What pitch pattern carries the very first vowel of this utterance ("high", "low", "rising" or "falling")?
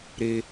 high